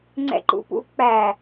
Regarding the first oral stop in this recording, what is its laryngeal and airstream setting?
click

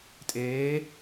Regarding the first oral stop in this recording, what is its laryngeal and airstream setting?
ejective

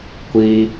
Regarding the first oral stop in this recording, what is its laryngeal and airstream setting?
plain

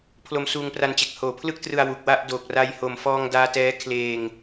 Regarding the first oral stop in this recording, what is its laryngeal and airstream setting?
aspirated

